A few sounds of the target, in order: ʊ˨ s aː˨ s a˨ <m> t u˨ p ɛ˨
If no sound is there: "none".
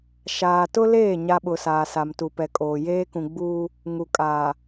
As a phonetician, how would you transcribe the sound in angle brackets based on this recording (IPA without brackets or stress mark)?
m